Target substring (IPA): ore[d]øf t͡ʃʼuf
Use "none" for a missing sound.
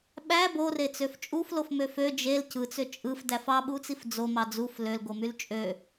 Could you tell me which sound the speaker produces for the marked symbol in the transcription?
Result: t͡s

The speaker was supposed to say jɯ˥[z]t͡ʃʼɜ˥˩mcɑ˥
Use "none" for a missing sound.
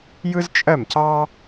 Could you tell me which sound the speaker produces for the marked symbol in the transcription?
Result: z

